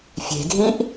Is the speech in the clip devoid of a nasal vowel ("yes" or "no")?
no